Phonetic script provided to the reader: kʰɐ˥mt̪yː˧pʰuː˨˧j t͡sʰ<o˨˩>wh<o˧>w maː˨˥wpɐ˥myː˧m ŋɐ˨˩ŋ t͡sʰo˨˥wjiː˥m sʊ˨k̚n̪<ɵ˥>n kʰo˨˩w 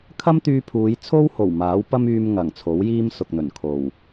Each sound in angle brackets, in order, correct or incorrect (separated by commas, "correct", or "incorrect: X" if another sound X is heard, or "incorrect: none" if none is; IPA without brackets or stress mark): incorrect: o˥, incorrect: o˨˩, incorrect: ɵ˨˩